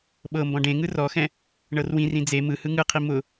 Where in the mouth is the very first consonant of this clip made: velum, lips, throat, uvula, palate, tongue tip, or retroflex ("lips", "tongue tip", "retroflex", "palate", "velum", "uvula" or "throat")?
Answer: lips